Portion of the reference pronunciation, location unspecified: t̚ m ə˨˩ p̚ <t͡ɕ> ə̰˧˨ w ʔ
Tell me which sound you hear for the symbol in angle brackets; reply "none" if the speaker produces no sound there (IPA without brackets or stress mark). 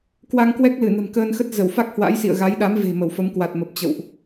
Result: t͡ɕ